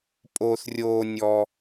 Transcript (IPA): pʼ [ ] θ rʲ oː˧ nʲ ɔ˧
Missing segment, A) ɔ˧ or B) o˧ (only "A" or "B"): B